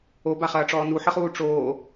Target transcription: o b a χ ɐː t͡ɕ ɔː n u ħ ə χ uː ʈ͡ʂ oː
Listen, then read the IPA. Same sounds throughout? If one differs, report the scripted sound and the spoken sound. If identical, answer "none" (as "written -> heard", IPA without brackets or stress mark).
t͡ɕ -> ʈ͡ʂ